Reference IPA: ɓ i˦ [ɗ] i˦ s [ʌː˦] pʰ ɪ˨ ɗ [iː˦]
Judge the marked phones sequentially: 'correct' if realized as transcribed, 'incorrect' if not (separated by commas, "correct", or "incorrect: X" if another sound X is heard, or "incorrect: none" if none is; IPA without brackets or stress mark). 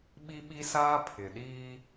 incorrect: ɓ, incorrect: aː˦, correct